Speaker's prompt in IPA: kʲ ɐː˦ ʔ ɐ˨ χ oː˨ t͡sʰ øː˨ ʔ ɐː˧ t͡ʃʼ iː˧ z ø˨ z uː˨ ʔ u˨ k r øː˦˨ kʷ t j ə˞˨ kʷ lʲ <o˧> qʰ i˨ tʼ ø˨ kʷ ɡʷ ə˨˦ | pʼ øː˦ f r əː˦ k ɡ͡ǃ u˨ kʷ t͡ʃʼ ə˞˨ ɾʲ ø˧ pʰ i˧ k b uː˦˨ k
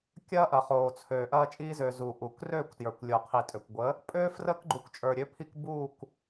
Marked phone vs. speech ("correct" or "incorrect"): incorrect